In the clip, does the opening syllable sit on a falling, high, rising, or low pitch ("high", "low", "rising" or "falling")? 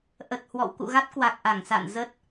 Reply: low